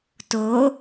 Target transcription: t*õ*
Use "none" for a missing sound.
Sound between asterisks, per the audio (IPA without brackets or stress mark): o